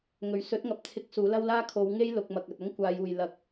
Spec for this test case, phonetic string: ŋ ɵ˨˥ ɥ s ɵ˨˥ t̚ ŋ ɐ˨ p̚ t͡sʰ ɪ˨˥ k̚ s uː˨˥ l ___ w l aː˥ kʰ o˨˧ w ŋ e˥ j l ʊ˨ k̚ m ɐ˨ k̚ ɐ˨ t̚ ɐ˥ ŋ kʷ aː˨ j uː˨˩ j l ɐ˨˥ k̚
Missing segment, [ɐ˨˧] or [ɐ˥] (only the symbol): ɐ˥